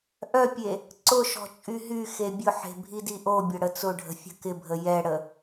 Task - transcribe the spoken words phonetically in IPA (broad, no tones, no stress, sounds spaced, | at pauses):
ʔ œ pʲ e | ǀ ʊ ʃ ɔ̤ t͡ʃʼ y ɦ y x e bʲ ʊ ħ e̤ bʱ i d i ʔ o bʲ ɐ ɽ ə t͡s ʊ ɖʱ ə̤ fʲ ə̤ k ɪ bʱ ə j ɛ ɽ ə